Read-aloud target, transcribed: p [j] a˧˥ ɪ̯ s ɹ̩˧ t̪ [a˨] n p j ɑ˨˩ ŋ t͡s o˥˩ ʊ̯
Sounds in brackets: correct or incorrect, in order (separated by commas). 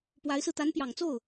incorrect, incorrect